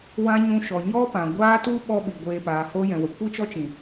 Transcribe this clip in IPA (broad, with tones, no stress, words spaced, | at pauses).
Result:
wã˧ ɲũ˧ʃɔ˨ ɲɔ˦pã˨ɡʷaː˦ tu˦ ɓɔ˦ɓi˨ɡʷeː˧ paː˨hoː˧jɛ̃˨wə˨ kʷi˦t͡ʃɔ˦t͡ʃĩ˨